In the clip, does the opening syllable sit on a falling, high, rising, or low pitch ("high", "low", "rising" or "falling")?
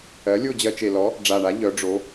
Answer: rising